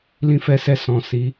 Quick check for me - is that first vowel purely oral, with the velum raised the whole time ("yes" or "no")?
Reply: no